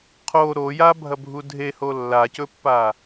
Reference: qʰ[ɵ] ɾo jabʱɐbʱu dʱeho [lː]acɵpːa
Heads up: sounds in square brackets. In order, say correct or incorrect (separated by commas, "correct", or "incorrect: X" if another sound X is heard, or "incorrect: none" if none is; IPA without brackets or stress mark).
incorrect: o, correct